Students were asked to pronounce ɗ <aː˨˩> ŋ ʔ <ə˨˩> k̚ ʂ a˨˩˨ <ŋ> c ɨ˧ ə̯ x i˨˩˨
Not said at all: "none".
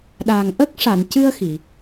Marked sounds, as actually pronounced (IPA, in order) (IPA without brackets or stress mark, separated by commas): aː˨˩, ə˦˥, n